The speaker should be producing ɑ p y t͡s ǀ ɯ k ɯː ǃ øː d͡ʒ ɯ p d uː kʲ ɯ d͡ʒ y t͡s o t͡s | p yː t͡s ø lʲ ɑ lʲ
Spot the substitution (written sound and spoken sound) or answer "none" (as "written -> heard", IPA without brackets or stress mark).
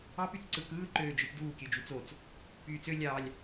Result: none